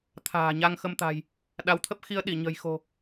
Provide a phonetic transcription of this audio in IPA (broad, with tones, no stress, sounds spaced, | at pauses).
t̪ʰ a̤ː˨˩ ɲ a˧ ŋ x ə˧ m t̪ a̤˨˩ j | ɗ a˨˦ w t̪ʰ ə˦˥ p̚ x i˧ ə̯ ɗ i˧˩ ɲ ə̤˨˩ j x o̤˨˩